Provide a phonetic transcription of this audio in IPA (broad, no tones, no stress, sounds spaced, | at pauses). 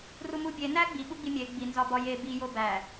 r u m u bʲ e n æ ɡ͡b i ɓ u ɡ͡b i mʲ e ɡ͡b i n z ɒ b ɒ j e b i j o b æ